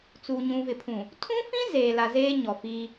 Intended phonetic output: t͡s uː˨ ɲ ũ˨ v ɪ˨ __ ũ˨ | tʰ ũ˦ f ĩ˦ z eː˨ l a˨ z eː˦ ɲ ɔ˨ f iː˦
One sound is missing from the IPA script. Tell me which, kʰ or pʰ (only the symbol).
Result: pʰ